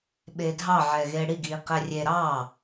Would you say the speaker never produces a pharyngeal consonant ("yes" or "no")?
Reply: no